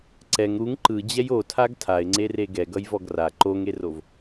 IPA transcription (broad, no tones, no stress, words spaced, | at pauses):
ǀɛŋ ɾuŋ ǃɯd͡ʑɛj otʰaɡ tʰaɪ̯ŋ͡ǀere ɡɛɡʌjvɔɡ ra ǃoŋerov